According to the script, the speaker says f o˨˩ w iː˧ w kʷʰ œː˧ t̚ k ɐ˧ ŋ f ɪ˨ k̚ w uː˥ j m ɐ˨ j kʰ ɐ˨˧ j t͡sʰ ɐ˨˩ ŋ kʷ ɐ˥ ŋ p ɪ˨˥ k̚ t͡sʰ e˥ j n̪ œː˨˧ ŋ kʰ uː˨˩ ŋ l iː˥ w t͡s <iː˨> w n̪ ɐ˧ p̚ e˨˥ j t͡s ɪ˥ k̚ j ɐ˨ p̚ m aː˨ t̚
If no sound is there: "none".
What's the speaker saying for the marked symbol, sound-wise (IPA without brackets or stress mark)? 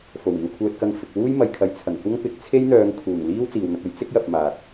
iː˨